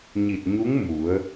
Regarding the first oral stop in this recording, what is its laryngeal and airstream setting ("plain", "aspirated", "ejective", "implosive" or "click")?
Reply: plain